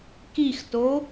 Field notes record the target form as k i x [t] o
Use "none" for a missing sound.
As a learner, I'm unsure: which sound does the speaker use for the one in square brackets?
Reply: t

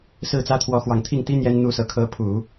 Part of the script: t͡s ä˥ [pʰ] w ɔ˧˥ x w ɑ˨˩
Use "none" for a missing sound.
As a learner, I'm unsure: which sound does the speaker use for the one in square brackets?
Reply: t̪ʰ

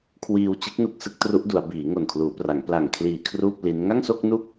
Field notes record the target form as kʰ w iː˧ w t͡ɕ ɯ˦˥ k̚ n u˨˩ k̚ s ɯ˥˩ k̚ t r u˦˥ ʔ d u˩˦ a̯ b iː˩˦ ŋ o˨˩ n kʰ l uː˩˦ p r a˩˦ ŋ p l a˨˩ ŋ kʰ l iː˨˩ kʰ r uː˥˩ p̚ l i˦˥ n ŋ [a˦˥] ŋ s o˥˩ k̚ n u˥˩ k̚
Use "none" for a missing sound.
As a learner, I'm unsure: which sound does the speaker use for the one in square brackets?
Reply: a˥˩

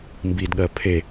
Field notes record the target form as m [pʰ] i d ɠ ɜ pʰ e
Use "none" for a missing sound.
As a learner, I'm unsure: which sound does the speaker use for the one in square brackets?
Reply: b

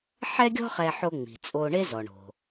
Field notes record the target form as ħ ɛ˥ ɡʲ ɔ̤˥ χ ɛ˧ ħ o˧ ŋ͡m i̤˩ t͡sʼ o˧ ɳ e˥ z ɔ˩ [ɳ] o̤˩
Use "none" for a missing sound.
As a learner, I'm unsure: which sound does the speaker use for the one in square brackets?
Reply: ɳ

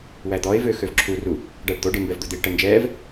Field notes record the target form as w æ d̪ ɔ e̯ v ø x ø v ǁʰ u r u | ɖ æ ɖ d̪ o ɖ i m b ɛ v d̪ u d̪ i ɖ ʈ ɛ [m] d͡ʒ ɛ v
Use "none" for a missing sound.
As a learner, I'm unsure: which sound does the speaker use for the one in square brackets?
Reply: n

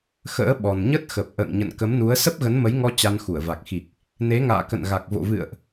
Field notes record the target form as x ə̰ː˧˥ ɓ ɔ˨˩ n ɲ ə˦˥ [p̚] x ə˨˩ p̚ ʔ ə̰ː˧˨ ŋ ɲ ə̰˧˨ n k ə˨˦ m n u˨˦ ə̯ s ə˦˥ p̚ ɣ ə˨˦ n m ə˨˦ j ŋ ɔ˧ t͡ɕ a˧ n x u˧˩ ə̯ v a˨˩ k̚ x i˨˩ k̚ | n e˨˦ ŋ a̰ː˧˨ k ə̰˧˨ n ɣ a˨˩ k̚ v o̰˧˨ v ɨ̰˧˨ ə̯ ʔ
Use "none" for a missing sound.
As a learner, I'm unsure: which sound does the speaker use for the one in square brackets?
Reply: t̚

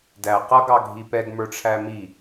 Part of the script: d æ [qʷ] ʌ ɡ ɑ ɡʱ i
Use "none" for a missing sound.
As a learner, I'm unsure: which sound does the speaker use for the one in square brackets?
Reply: q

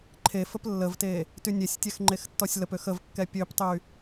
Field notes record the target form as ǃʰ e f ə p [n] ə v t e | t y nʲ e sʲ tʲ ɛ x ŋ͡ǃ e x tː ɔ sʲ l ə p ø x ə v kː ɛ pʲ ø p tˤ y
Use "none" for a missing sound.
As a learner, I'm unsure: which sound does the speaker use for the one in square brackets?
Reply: lː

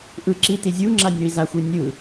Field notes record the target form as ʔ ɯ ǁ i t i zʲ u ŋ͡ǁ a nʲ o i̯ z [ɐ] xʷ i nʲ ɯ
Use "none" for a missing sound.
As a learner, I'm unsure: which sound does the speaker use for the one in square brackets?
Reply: a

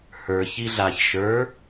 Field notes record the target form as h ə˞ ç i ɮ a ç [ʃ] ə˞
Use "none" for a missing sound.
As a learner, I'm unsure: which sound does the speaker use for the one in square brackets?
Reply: ʃ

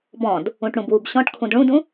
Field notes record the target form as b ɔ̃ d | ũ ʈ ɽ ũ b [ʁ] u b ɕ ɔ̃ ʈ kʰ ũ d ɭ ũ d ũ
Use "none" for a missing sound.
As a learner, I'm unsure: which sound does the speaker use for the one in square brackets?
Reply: w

